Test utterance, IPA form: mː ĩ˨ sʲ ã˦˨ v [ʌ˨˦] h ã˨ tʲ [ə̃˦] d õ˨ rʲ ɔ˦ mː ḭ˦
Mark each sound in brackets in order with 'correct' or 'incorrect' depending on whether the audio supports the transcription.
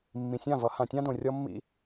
correct, incorrect

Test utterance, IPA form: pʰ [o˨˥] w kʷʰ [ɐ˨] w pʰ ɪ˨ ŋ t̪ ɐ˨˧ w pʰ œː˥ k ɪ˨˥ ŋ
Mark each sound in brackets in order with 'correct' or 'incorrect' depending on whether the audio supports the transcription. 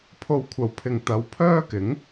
incorrect, correct

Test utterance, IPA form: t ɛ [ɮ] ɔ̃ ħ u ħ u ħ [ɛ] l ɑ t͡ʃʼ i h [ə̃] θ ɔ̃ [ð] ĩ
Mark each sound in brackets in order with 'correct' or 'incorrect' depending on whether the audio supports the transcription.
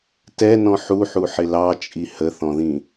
incorrect, incorrect, incorrect, correct

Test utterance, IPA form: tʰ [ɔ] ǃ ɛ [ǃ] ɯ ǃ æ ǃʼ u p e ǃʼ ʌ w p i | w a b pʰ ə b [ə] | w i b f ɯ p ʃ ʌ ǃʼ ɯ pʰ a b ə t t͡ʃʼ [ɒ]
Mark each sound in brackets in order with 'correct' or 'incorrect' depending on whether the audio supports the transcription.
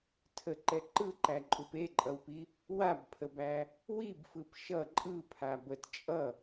incorrect, correct, incorrect, incorrect

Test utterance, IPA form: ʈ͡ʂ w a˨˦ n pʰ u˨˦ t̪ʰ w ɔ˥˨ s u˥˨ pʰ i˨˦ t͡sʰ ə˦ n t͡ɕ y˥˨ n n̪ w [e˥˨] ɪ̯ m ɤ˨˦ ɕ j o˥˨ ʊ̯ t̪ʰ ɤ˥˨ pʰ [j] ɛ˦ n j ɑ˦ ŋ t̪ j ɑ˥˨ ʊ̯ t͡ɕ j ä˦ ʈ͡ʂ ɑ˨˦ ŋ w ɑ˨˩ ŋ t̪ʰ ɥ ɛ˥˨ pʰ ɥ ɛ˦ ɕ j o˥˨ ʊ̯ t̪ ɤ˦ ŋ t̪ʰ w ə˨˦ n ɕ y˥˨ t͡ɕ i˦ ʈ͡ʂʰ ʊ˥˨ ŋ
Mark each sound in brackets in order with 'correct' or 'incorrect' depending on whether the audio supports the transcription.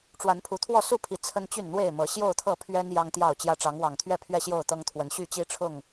correct, incorrect

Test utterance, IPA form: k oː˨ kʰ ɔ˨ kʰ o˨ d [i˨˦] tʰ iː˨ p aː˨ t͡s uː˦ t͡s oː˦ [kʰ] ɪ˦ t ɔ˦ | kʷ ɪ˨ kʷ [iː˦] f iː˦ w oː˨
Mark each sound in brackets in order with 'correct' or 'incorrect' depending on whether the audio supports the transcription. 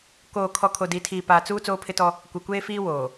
correct, incorrect, incorrect

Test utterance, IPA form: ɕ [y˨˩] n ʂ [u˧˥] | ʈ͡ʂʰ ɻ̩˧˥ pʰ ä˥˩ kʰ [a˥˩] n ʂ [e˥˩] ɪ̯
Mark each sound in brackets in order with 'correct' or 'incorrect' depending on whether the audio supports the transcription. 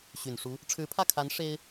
correct, correct, incorrect, incorrect

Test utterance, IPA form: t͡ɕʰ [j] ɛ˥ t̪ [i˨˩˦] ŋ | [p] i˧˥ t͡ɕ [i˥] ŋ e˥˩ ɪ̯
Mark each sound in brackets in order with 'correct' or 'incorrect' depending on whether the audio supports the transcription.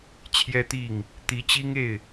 correct, incorrect, incorrect, correct

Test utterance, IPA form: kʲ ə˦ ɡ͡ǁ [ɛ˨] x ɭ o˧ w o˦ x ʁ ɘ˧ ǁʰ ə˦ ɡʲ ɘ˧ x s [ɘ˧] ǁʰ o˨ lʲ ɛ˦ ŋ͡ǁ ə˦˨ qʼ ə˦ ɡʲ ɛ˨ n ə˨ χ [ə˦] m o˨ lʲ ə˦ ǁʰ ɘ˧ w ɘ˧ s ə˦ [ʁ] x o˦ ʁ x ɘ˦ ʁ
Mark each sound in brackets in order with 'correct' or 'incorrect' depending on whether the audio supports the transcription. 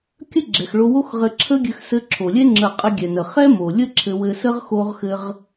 correct, correct, incorrect, correct

